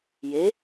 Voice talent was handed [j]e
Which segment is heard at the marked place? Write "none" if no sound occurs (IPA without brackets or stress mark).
j